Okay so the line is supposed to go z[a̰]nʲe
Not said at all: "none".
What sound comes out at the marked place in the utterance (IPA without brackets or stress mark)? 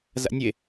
a̰